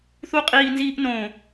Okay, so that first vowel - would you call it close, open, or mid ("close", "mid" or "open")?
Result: close